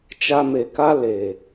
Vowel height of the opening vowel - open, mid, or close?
open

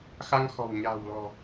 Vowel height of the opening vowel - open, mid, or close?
open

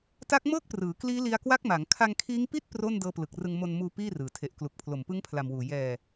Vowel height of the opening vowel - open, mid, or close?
open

